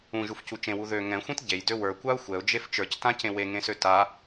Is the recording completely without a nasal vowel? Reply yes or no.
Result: no